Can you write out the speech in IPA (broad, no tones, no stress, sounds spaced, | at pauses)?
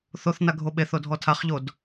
θ o θ n a ɡʱ o ɓ e θ o dʱ ɔ tʰ a χ ʎ o d